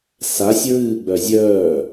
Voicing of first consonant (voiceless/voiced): voiceless